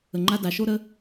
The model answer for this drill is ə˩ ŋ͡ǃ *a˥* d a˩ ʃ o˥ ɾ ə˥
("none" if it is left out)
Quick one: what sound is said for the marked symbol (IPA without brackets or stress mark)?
a˥